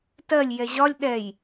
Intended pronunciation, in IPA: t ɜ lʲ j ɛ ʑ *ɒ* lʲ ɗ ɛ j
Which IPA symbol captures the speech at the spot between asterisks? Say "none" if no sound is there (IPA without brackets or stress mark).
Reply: ɒ